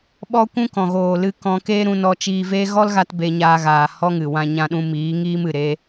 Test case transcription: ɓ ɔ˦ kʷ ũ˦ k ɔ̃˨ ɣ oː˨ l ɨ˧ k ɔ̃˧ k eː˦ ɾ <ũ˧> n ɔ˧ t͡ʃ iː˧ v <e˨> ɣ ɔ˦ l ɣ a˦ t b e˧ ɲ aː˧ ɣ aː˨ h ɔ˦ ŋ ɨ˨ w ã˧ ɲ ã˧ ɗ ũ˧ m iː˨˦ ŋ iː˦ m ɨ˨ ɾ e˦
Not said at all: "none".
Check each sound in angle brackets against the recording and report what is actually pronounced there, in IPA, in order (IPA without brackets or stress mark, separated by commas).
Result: ũ˧, e˦